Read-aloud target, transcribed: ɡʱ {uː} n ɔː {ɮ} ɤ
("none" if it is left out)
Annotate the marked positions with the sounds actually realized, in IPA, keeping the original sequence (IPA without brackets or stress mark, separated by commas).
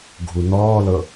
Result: u, l